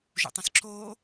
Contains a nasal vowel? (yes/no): yes